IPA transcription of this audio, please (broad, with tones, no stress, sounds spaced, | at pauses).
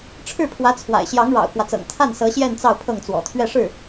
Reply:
ʈ͡ʂʰ ɻ̩˥˩ pʰ w ä˧˥ t͡sʰ w a̰˨˩ ɪ̯ ɕ j ɑ˧˥ ŋ ɻ ɑ̰˨˩ ʊ̯ k w ä˦ t͡s ɤ̰˨˩ ŋ t̪ʰ a˥˩ n s ɤ˧˥ ɕ j ɛ˥˧ n t͡s ɑ˥˧ ʊ̯ pʰ ɤ˥˩ ŋ t͡s w ɔ̰˨˩ t̪ʰ ɥ ɛ˥˧ ʂ ɻ̩˥˩